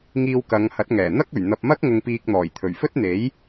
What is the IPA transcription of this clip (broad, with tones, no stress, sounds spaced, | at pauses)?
ŋ iː˧ w k ɐ˨˧ ŋ h ɐ˨˥ t̚ ŋ ɛː˨˩ n̪ ɐ˥ k̚ ɵ˨˩ ɥ n̪ ɐ˨ p̚ m ɐ˥ k̚ ŋ ʊ˧ ŋ p iː˧ k̚ n̪ ɔː˨˩ j t̪ʰ ɵ˨˩ ɥ f ɵ˥ t̚ n̪ e˨˥ j